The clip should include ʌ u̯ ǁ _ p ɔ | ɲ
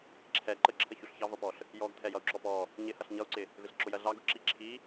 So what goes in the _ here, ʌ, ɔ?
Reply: ɔ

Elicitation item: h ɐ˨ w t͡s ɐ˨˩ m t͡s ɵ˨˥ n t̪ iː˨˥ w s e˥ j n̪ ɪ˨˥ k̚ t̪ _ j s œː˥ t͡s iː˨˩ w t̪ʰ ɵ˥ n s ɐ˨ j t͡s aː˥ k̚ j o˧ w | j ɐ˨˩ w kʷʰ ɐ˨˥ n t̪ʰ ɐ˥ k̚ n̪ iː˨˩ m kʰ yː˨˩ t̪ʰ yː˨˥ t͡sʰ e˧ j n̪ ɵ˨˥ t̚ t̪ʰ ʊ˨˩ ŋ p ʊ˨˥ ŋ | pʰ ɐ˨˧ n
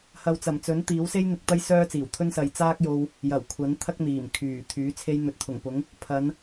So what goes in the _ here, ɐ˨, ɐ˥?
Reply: ɐ˥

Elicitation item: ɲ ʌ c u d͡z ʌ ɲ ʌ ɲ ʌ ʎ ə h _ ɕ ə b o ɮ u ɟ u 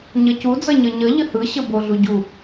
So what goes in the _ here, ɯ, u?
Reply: ɯ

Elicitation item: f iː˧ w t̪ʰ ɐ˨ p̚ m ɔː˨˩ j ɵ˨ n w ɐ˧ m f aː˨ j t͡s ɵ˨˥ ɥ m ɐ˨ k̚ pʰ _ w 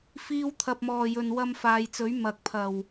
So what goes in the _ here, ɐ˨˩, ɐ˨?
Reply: ɐ˨˩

